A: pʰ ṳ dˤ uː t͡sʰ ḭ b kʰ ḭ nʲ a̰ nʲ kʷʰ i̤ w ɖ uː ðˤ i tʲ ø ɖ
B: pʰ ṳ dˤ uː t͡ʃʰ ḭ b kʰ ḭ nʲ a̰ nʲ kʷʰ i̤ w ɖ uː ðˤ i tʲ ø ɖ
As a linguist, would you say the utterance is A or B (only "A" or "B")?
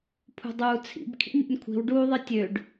A